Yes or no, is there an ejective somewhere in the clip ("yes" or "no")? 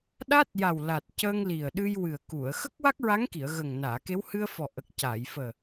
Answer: no